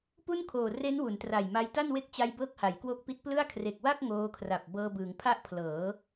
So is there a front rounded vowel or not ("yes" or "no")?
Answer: no